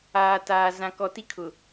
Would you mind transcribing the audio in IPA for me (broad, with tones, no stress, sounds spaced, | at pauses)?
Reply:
aː˨ t aː˨ z ã˨ k ɔ˨ t i˦ kʰ ʊ˨